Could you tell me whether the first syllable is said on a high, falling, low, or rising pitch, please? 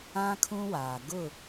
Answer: high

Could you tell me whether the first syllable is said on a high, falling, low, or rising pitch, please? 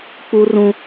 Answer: high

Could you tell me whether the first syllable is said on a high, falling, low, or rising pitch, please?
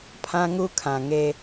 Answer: high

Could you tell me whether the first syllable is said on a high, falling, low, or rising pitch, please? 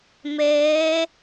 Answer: rising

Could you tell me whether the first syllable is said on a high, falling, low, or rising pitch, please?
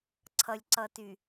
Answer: low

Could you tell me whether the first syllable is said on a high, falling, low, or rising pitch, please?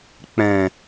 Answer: low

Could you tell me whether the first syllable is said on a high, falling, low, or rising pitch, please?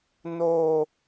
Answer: high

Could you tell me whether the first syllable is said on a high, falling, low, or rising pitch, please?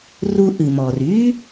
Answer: high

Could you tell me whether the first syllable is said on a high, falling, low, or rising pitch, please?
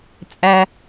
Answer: high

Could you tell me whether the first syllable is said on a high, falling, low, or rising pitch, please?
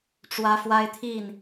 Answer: high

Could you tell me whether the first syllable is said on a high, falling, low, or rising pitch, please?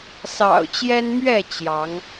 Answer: low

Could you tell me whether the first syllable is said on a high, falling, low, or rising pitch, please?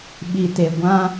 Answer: low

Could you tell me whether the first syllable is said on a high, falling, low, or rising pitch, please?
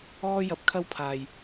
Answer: high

